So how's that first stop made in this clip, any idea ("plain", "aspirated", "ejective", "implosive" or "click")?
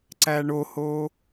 click